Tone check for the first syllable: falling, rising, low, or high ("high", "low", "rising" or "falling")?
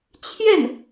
falling